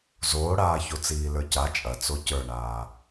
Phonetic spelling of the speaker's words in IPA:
z oː ɽ aː ç o t͡s iː l ə˞ c a t͡ʃʼ ɐ t͡s o c ə˞ ɳ aː

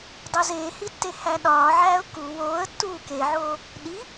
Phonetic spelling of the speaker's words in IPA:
dˤ o z eː h i tː e h æ ɗ ɒː ʕ æː ʊ̯ k u w oː ə̯ tː uː k e ʕ oː | ɗ i

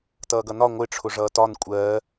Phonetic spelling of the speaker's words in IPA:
t ʌː ɡ ʌ n ɒ ŋʷ ɪ ʈ͡ʂʰ ʊ ʐ ʌː t ɒ n kʷʼ ɜː

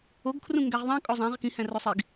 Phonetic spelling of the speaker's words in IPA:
o ɡ kʰ r ũ ŋ ɡ æ ʁ ðˤ æ̃ kʼ o zˤ æ̃ ʁ k ĩ h æ̃ r o sˤ i ɡ

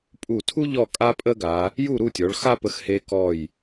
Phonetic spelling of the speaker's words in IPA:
pʼ u˧˩ tʰ u˥ ʎ ɔ˥˧ kʼ a˥ pʼ ə˥ ɡ a˩˧ | j u˥˧ ɾ u˥˧ tʲ ɔ˩˧ ɭ x a˥ p ə˧ x h e˧ k ɔ˧˩ j

